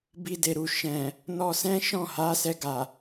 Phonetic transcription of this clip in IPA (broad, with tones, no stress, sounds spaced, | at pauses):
b i˧ d e˨ ɾ u˨ ʃ ɛ̃˨ | n ɔ˧ s ɛ̃˦ ʃ ɔ̃˦˨ h a˨˦ s ɛ˧ ɡ a˨